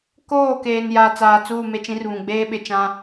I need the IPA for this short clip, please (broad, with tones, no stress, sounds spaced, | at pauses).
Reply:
k oː˦˨ k eː˨ n j a˨ t͡s aː˨ t͡s uː˦˨ m e˦ t͡ʃ ĩ˦ r β ũ˨ ɡ͡b eː˦ ɓ ɪ˨ t͡ʃ ã˦